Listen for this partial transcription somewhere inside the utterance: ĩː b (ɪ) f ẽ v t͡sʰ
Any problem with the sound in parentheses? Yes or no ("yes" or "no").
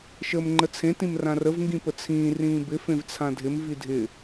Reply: no